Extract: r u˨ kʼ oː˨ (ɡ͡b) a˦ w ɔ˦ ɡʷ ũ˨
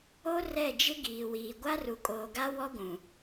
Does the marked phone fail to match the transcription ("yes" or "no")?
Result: yes